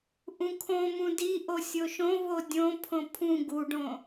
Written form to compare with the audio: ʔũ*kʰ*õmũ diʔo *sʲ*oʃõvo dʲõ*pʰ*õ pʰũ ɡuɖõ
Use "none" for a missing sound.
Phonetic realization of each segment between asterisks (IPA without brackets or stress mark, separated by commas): kʰ, sʲ, pʰ